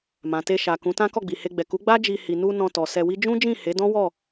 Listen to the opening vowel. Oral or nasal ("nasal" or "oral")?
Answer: nasal